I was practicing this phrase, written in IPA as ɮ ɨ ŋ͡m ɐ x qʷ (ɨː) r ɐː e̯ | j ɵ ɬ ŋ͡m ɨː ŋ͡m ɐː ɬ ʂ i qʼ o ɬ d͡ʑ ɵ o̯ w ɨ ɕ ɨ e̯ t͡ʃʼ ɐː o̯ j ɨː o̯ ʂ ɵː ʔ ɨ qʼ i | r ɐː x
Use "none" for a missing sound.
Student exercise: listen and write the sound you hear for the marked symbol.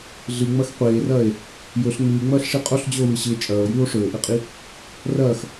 eː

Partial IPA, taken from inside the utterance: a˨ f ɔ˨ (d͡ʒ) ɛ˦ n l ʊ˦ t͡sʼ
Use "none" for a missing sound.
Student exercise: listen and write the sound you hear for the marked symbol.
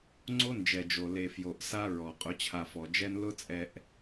d͡ʒ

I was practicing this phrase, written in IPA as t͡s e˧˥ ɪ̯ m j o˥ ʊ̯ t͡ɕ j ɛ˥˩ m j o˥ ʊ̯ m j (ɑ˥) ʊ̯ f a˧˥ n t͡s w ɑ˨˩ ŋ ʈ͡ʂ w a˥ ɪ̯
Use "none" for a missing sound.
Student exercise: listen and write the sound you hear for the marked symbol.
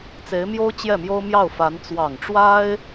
ɑ˥˩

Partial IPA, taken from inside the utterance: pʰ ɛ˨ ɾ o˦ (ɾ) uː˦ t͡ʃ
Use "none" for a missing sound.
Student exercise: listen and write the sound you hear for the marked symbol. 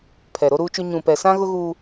ɾ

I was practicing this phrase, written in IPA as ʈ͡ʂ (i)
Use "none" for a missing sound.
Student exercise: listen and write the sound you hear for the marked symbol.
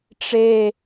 e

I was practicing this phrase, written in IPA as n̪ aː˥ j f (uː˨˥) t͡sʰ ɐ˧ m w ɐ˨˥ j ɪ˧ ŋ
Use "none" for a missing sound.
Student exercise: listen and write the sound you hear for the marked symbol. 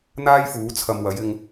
uː˨˥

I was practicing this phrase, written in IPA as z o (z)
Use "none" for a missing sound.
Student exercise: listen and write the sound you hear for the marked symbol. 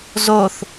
θ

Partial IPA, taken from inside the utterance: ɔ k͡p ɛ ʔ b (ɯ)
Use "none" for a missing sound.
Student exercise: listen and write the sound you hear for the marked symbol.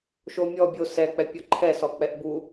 u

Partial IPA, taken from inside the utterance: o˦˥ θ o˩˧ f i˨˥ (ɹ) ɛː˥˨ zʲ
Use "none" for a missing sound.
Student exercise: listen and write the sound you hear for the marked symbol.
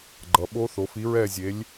ɹ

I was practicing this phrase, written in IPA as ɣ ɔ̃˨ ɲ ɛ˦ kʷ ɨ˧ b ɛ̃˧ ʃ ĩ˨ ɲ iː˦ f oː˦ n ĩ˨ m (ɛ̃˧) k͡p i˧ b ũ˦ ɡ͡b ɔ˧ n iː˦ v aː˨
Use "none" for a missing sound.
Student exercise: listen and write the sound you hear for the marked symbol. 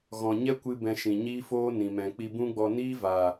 ɛ̃˨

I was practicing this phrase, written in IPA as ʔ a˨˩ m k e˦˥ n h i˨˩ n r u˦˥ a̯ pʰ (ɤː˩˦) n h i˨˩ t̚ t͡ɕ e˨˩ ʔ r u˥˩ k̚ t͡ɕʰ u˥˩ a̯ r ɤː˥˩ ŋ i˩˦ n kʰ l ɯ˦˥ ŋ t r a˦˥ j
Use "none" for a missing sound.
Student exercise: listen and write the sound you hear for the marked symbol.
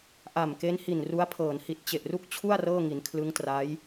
ɤː˩˦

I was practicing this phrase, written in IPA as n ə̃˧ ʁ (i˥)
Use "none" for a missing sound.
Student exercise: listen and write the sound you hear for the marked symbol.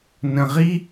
i˥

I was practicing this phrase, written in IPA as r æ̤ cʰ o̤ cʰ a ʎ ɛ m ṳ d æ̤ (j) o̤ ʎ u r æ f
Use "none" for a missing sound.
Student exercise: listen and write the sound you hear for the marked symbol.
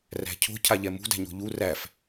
ɲ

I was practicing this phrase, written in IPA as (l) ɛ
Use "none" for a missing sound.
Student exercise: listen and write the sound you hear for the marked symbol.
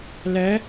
l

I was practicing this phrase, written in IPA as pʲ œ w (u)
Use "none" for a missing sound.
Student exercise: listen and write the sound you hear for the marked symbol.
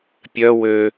ø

